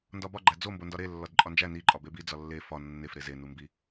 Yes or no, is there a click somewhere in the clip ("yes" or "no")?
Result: yes